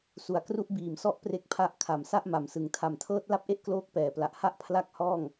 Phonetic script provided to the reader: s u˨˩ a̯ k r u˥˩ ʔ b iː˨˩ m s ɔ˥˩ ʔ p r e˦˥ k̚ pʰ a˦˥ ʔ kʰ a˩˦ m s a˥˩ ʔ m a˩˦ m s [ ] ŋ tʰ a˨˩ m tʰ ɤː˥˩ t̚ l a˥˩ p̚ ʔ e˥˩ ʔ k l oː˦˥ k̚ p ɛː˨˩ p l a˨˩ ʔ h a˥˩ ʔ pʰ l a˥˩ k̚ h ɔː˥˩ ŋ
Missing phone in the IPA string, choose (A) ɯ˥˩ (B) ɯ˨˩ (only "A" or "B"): B